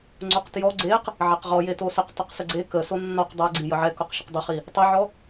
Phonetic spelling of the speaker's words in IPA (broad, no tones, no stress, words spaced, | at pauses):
ŋ͡ǀoqtjɔ ɡ͡ǀeq | ʕɛqʁɔje tosəq tˤəqsəɡ͡ǀe kəso nːɔq dˤɛɡ͡ǀi jəʕɛ koqʃəqdˤəχi | tˤɘʕɔ